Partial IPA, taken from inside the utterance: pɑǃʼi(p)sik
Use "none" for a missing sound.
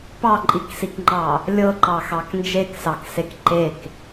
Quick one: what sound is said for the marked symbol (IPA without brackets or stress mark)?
k